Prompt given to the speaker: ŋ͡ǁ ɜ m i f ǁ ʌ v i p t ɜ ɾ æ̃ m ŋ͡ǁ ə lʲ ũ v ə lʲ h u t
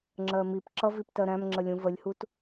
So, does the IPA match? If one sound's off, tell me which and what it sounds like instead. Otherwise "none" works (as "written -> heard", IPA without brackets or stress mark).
f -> p